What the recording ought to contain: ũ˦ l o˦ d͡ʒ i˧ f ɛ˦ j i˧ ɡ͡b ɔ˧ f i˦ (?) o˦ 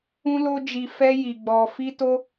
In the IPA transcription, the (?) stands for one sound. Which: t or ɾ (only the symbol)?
t